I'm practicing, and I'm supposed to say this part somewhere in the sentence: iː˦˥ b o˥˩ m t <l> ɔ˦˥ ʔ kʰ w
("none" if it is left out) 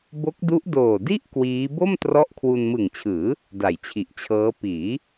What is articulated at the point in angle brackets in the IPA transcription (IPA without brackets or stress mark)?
r